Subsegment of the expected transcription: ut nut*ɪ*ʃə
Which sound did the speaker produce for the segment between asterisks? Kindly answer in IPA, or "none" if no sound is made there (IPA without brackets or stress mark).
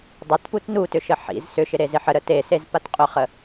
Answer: ʏ